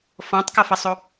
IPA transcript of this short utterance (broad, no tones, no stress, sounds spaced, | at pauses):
f ɔ̃ tˤ k ʌ f ʌ sˤ o